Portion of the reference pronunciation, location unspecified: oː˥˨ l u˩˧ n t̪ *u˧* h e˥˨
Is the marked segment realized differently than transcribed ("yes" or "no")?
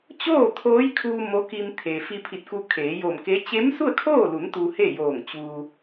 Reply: no